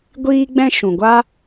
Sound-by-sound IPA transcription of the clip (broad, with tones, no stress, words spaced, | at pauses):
ɡʷiː˦ɡ͡bɛ̃˦ ʃũ˨ɡʷa˦